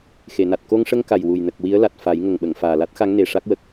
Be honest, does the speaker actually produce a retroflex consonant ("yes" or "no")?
yes